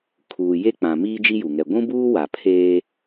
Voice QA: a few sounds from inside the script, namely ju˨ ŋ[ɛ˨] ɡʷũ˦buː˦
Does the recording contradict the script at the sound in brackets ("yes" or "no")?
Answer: no